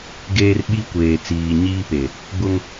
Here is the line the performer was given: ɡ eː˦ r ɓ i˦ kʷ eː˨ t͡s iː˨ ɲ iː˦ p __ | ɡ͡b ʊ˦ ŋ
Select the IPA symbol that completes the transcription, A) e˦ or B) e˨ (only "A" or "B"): B